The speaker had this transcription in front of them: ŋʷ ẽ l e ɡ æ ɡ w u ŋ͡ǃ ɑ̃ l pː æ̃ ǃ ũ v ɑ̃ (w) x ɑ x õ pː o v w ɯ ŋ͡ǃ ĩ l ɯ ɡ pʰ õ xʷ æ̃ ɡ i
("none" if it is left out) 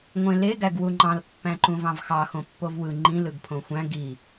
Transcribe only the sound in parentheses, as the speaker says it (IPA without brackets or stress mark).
v